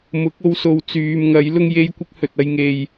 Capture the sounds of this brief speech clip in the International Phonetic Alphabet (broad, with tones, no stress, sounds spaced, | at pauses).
m ʊ˨˥ k̚ o˨˧ w s o˨˧ w t͡s yː˨ m ŋ ɐ˨˥ j l ʊ˥ ŋ j e˥ j kʷ ɪ˥ k̚ h ɵ˨ t̚ ɐ˧ j ŋ e˨ j